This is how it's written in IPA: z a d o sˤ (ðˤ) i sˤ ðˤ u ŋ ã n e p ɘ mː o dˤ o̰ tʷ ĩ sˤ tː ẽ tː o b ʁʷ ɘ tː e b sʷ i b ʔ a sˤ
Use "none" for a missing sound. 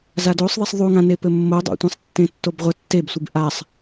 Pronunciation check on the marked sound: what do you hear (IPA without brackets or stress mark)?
ðˤ